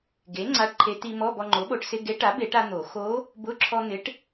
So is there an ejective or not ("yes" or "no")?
no